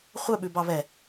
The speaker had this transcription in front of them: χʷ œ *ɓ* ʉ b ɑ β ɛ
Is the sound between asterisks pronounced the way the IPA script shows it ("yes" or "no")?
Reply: yes